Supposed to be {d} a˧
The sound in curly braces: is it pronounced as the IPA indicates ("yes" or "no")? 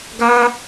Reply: no